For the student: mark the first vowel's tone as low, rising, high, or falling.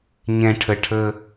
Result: low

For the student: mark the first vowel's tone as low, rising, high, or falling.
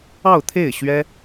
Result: falling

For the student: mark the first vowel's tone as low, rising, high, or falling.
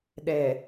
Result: low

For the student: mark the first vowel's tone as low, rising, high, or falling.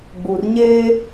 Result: low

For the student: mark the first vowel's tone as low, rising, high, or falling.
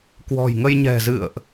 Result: low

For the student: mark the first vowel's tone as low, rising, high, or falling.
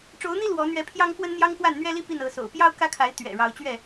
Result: rising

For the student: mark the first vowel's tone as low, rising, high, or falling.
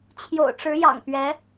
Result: low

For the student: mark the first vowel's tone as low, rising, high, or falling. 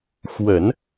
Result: low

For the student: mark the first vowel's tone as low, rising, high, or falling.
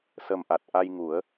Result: low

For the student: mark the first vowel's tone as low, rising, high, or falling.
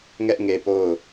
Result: high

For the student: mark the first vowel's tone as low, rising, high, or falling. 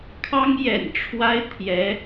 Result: high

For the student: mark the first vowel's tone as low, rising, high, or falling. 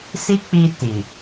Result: high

